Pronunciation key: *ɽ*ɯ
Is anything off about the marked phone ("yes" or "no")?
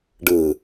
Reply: yes